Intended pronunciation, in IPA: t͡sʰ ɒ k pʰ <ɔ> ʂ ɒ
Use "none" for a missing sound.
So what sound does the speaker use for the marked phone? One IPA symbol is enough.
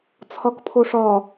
o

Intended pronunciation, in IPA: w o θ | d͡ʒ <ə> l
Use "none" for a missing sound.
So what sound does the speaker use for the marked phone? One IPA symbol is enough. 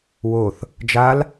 a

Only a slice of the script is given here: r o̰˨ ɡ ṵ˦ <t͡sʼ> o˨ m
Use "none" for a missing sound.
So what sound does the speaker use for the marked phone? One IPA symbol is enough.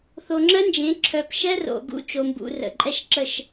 t͡ʃ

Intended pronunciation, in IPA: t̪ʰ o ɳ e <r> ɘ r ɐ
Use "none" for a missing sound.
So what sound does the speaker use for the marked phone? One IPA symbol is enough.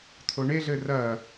ɮ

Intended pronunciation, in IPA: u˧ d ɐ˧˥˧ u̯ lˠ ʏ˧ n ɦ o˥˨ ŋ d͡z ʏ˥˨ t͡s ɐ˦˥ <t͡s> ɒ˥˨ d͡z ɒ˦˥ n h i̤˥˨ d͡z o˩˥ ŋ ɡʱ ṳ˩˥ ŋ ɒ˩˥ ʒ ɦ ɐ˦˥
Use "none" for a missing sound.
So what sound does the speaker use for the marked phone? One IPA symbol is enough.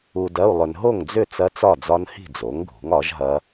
t͡s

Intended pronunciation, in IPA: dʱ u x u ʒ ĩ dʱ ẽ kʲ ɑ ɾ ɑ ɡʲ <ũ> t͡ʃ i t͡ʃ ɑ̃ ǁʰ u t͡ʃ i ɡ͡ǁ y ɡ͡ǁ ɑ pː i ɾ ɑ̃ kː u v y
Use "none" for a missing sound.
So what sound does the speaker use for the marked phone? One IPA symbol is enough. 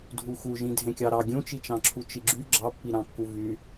ũ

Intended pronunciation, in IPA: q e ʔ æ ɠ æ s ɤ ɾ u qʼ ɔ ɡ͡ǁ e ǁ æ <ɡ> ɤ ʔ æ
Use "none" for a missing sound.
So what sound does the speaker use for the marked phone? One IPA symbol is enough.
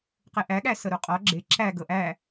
ɡ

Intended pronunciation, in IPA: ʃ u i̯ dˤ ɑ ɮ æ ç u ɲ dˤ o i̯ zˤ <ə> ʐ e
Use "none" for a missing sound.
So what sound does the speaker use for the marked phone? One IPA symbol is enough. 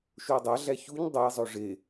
ø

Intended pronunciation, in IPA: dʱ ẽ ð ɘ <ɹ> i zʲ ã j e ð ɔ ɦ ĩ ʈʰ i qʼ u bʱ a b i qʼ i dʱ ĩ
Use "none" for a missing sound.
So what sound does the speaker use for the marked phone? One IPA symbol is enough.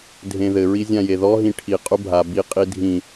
ɹ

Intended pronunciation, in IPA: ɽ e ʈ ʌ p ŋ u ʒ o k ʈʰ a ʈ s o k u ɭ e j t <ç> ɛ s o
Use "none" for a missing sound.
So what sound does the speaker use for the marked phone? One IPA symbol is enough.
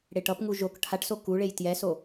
j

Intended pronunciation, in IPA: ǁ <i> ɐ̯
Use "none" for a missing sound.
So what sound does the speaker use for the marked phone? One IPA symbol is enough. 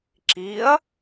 i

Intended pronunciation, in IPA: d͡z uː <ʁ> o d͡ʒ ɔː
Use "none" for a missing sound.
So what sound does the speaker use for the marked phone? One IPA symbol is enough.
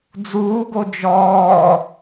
ɡ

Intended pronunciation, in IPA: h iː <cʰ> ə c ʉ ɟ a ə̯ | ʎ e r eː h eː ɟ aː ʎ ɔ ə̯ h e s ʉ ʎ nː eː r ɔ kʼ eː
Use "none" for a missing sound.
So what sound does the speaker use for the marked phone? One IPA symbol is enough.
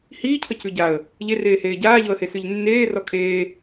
cʰ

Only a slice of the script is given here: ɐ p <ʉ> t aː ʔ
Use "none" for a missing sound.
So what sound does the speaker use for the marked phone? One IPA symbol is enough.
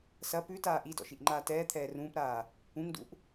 ʉ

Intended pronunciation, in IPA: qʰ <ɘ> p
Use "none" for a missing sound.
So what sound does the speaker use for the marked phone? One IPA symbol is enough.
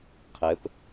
ɘ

